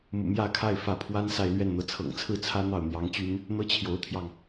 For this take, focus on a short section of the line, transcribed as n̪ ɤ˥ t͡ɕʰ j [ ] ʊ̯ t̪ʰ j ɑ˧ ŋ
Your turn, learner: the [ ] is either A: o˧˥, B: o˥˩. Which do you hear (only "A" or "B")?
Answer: A